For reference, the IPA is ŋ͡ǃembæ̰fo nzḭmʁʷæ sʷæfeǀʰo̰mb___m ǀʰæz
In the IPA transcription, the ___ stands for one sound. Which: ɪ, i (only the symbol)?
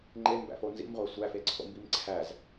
i